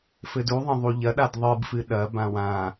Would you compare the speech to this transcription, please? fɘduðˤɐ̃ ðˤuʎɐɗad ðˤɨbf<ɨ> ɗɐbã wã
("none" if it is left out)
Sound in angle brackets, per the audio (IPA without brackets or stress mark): ɨ